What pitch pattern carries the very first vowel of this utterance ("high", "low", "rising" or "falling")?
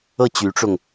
falling